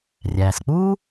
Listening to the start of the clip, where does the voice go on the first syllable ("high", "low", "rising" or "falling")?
low